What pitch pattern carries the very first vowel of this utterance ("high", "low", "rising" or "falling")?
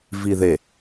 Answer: low